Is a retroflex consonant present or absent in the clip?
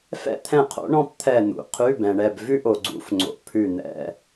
present